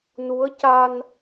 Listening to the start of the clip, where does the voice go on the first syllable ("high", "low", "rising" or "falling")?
rising